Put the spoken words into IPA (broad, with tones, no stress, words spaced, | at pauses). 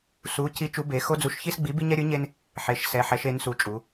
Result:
su˨˥ cʰi˨˥t͡ʃu˨˥be˩˧ xo˦d͡zu˨˥ʃçi˦sɡ͡bi˨˥ bi˦ɲɛ˦ɾʲɯ˨˥ɲe˦n | ħe˩˧ʃ sɛ˩˧ħɛ˩˧ʃe˩˧n su˩˧t͡ʃʼu˩˧